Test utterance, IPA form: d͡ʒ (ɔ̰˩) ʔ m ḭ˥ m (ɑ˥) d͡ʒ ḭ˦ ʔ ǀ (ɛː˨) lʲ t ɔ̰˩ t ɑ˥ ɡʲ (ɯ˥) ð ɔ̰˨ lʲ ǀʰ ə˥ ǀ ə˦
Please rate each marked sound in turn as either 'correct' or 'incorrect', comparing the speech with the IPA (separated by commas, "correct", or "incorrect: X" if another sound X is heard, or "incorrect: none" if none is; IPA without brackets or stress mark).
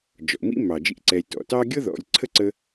correct, incorrect: ɑ˩, correct, incorrect: ɤ˥